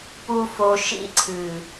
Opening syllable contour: high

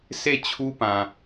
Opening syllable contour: falling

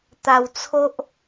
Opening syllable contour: low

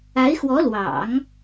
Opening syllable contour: rising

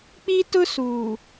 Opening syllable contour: high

